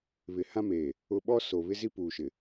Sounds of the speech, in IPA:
βɪ˨hã˦meː˨ | ʊ˦ ɓɔ˦so˨βɪ˦ zi˦puː˨ʃɪ˨

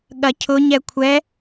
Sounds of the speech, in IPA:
ɠɐcʰʊ ɲɛkʷʰɛ

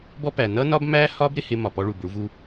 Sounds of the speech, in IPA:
bɔ˦pæ˨ nʌ˦nɒ˦bmæ˦hɒ˦b ɾɪ˦hɪ˦mɒ˨pɔ˦ ɭu˨bɭu˦vu˦

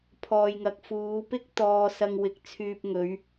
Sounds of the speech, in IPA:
pʰɔː˨jŋɐ˨˥k̚ fuː˨˧pɪ˥k̚ t̪ɔː˧sɐ˧ŋwɪ˨k̚ t͡sʰyː˨p̚ŋɵ˨˧ɥ

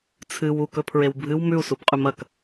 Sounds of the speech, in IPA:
t͡sʰɨ wukɵpʰɹew bʱɨw mʉu̯subqʼʉm ɐk

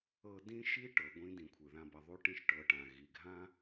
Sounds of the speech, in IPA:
ɤ˧ dĩ˥ʃi˥ ʈɤ˩˧ɡʷĩ˧ dĩ˩˧kʷʰɯ˩ðã˧bʌ˩˧ ðˤu˧˥ʈĩ˧ʃʈɤ˩˧ ʈã˩ɣi˩ɡʱã˧

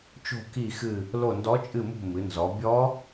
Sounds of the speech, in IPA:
t͡ʃo̤˦˨ ki˦˨xɨ˦˨ | lo˦˨ndɔ˧˥t͡ʃʼɨ˦˨mṳ˦˨ mɨ˩˧nzɔ˩˧ bʲɔ˧˥

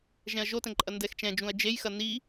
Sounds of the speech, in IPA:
ʒɛ̃ɐ̯ʒotɛ̃ ǃʼɐndɛxt͡ʃɛ̃d͡ʒũɐ̯ d͡ʒejxɐ ni

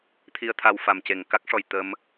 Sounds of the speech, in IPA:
t̪ʰi˧ə̯t̪ʰa˧w fa˨˩mce˨˩ŋka˦˥k̚ʂɔ˨˩j t̪ə˧m

